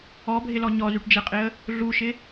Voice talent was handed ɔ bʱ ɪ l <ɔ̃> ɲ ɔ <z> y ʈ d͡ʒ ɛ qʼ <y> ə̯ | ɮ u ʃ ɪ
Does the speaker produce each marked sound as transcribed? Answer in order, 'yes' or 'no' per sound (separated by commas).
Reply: no, yes, no